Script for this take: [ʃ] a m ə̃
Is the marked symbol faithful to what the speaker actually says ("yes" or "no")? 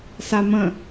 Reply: no